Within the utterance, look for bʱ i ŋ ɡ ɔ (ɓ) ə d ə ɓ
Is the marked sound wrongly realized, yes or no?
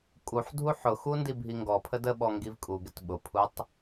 yes